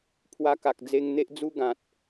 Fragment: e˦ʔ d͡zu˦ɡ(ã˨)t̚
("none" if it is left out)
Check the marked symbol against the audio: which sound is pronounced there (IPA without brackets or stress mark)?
ã˨